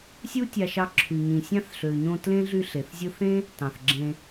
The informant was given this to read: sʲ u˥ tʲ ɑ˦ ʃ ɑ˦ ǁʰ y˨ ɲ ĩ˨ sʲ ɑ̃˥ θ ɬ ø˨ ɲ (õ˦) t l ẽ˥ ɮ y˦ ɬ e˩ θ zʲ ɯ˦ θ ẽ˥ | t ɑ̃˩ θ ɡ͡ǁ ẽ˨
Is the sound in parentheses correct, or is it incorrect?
correct